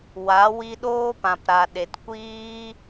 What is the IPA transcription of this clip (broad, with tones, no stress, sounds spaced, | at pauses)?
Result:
w a˨˦ w i˦ ɗ oː˦ p ã˨ p ɾ a˨ ɗ e˨ t kʷ iː˦